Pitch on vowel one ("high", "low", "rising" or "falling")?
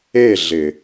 falling